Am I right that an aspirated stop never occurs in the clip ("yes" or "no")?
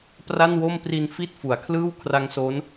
no